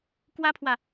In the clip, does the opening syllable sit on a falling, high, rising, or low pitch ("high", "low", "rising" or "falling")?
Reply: high